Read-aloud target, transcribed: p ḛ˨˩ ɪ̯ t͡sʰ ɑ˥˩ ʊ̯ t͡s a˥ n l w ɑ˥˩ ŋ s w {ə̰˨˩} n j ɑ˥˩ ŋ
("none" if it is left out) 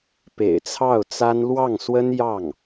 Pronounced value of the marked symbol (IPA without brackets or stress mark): ə˥